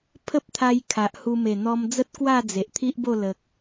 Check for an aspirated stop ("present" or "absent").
present